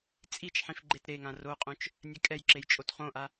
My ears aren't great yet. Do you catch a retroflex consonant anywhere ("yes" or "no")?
no